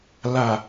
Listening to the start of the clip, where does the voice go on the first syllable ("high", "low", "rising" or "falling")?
low